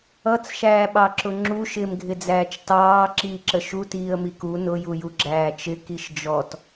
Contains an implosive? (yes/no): yes